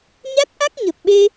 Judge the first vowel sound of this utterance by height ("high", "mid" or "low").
low